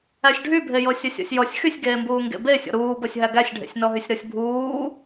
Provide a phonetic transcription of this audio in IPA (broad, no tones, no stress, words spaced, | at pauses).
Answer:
æsʲɖʱybʱejɤ sʲɜsʲɔ̰sʲjɔsʲ xysʲɡeːmbuː ŋɡḛbe sʲɔ̰ɾuːbɤsʲɦæ ɡæsʲɖʱḛsʲnɔɦysʲ ɾɤsʲbʱuː